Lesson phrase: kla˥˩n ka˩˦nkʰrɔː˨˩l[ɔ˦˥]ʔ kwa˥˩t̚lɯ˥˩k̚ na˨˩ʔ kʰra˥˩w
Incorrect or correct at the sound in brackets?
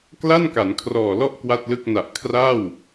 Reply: incorrect: ɔ˥˩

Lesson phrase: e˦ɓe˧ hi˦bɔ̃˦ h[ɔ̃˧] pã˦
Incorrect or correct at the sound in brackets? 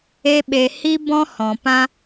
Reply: incorrect: ɔ̃˨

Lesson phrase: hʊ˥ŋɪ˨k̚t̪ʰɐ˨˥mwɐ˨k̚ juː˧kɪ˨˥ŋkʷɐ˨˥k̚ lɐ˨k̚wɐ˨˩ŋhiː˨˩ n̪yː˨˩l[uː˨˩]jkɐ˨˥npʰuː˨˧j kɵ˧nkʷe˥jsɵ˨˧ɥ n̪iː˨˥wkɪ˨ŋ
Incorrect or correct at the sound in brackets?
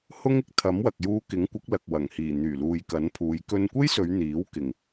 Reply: incorrect: uː˨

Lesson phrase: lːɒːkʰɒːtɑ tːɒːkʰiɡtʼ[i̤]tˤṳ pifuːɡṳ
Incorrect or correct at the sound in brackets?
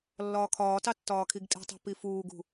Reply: correct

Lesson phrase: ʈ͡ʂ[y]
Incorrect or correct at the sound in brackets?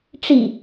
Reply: incorrect: i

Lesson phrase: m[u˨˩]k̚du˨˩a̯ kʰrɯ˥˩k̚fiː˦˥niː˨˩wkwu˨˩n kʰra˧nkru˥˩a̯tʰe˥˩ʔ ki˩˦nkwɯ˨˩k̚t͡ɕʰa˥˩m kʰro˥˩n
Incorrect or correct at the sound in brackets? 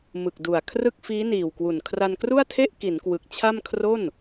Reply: incorrect: ɯ˨˩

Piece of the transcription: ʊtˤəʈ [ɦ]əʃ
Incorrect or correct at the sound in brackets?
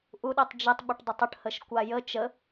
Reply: incorrect: h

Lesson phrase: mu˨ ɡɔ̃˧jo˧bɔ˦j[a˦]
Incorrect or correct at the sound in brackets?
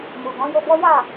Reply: incorrect: a˦˨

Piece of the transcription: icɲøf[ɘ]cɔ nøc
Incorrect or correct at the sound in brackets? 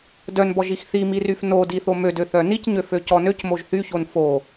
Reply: incorrect: ø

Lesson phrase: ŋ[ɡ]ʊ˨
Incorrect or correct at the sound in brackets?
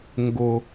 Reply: correct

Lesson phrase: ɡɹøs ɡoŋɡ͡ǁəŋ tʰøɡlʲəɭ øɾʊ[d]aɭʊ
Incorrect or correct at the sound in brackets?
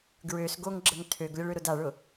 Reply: correct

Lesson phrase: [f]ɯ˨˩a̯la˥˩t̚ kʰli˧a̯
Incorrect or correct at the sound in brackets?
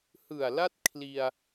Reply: incorrect: h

